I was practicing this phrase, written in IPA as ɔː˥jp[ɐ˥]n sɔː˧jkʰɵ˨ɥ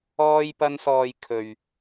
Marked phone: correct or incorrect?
correct